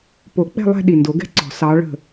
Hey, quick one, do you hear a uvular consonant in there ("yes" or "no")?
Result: no